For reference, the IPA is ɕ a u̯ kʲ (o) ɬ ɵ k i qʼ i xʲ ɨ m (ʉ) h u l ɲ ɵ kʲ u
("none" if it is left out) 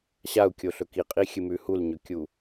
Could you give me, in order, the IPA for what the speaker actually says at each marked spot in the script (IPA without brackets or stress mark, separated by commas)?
o, ʉ